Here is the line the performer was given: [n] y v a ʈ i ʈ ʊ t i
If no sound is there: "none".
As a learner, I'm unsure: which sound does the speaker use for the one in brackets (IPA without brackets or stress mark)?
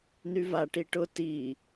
n